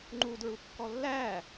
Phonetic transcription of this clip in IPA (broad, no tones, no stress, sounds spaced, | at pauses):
ŋ͡ǃ u d ɹ u kː ɔ lː æ